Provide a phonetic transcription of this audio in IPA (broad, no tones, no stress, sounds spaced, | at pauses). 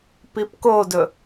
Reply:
p i p k o d ɵ